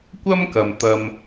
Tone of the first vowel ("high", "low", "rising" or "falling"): high